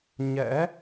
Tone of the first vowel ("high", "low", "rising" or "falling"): rising